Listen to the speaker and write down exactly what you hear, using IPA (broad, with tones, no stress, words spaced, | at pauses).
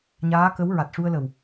ɲaː˧˥kə˧˥w ɹa˨˩t̚ʂu˧ə̯lə˨˩w